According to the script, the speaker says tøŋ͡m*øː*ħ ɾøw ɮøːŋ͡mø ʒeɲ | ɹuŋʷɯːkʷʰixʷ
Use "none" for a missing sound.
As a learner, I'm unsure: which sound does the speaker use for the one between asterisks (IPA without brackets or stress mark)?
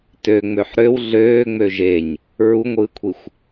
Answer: ø